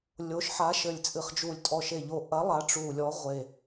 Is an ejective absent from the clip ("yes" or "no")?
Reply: no